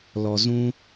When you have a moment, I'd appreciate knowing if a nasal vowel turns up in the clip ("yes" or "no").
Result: yes